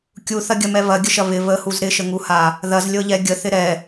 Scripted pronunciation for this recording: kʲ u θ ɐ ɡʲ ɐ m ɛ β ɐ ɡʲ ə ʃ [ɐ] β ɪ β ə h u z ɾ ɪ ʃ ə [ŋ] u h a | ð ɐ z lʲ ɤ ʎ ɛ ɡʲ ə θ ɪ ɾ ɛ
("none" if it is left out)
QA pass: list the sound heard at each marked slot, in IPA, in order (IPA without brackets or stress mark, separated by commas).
ɐ, ŋ